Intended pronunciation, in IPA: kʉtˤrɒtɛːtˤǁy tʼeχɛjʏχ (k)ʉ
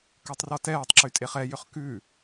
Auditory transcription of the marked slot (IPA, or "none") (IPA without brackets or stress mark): k